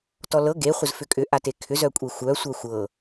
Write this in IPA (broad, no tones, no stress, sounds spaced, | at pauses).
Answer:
t ɔ l ɤ ɡ e χʷ ə z f ʏ kʼ ʏ ʔ a t e kʰ ʏ z œ kʷʼ e xʷ œ sʷ œ xʷ ɤ